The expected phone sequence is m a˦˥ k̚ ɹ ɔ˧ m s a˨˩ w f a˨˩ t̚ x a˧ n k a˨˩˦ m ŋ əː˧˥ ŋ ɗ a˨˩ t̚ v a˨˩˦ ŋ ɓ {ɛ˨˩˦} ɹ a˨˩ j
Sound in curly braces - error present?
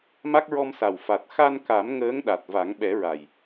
no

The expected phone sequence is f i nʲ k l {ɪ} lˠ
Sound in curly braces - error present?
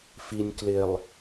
no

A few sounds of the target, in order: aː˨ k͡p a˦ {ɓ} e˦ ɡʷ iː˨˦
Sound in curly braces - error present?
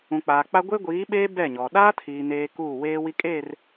yes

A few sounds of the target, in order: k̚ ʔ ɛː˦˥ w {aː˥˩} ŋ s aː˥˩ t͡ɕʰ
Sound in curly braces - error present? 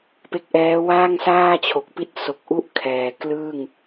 no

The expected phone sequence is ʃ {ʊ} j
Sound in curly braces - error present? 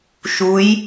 yes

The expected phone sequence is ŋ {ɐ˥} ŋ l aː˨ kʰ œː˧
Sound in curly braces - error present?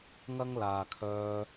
no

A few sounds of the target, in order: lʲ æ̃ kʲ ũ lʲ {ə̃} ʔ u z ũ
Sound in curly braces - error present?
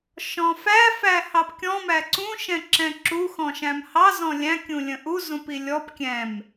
no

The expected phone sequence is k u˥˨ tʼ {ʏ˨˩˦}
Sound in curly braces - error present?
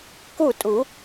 yes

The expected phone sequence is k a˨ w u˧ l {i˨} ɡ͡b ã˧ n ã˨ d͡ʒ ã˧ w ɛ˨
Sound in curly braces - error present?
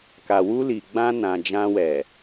no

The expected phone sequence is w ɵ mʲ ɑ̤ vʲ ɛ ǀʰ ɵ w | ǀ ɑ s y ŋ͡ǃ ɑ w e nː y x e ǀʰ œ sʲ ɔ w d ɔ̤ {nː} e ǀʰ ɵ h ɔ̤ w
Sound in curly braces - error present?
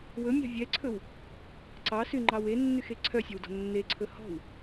no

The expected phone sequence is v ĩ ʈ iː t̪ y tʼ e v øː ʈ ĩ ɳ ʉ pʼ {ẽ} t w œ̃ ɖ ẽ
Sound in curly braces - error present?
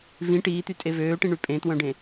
no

